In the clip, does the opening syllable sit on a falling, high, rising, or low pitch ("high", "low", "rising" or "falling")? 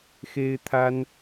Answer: high